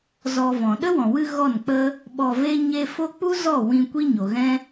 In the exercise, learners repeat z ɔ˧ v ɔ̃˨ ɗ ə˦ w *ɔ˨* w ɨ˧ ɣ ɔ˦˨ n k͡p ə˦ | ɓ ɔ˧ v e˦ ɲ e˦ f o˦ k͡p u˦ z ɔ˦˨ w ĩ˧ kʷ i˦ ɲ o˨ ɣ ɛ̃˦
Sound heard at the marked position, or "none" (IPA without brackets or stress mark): ɔ̃˨